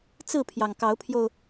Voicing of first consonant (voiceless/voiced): voiceless